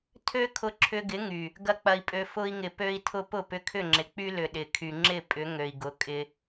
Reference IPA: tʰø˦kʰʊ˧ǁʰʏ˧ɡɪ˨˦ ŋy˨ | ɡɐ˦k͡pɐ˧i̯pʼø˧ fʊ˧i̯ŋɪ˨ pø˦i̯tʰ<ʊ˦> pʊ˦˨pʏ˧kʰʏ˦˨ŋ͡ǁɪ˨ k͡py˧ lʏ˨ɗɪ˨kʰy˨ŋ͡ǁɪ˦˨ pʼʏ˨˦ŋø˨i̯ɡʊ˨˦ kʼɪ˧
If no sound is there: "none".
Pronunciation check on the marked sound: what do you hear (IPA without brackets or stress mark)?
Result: ʊ˦